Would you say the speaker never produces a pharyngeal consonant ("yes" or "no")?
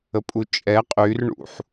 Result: no